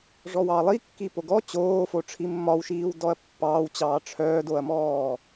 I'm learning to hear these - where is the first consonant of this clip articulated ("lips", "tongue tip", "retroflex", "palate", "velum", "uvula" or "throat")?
retroflex